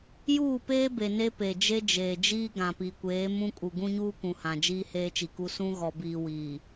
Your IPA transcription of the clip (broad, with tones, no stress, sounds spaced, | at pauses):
j uː˦˨ p eː˦ b e˨ n e˦ p e˨ d͡ʒ e˦ d͡ʒ eː˨ d͡ʒ iː˦ ɡ ã˨ p i˨ kʷ eː˨˦ m ũ˦ kʼ u˨ ɡ ũ˦ ɲ uː˦ k ũ˨ h ã˨ d͡ʒ iː˦ h eː˦ t͡ʃ i˨ k u˦ s ũ˦ ɣ ɔ˨ b iː˨ w iː˨